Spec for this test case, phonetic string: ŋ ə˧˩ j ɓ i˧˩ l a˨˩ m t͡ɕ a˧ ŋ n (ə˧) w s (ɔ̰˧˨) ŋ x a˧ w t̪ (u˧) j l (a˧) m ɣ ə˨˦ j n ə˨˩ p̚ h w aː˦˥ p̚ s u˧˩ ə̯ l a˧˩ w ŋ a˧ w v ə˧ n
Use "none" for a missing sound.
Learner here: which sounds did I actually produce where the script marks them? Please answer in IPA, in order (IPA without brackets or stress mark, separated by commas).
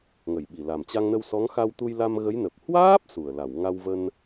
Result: ə˧, ɔ˨˦, u˧, a˧